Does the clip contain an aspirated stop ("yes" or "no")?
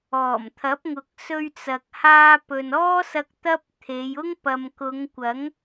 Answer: yes